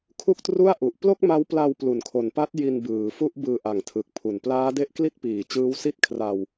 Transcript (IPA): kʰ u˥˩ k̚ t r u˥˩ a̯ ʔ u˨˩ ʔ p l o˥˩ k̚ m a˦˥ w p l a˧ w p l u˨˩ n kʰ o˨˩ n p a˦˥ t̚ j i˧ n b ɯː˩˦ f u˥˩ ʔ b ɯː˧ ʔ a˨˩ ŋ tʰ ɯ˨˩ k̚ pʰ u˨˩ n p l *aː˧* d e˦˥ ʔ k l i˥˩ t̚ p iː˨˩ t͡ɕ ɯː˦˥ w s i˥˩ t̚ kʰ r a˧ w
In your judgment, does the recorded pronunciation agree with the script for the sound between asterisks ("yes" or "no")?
no